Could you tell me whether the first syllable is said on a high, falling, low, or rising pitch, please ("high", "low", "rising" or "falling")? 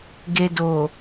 low